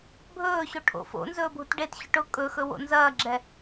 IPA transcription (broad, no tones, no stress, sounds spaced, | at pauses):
bʱ ɵː ɕ o ʈʰ o̰ f o̰ n z ɵː bʱ u t ɖ e t ɕ ʊ ʈ ʊ kʼ ɵ x ɵ w o̰ n z ɐː ɡ͡ǁ ɛ